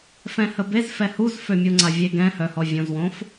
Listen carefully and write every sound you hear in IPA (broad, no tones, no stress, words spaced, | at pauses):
fɛ̃həbez fɛhuz fømʲuŋ͡ǀavʲe ɡɛ̃hœ hɔvʲõzwõf